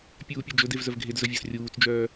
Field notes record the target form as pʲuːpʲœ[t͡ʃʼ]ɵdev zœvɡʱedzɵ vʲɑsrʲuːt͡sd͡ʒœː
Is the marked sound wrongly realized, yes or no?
yes